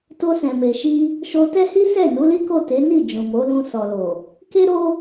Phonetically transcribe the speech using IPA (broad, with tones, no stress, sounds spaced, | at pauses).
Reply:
t o˧ s ɛ̃˨ m e˨ ʃ i˧ | ʃ o˧ t ɛ˦ h i˦ s ɛ˦˨ n u˨˦ l i˦ k o˦˨ t e˨˦ n i˦˨ d͡ʒ ũ˨ m o˨˦ l ũ˧ s ɔ˨ l o˨ | k e˦ ɾ o˦